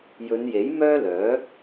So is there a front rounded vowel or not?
yes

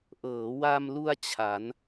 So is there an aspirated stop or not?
yes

